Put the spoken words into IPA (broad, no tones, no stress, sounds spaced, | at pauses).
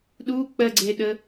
ɗ u k͡p ɜ ɡ͡ǀ e ɗ ə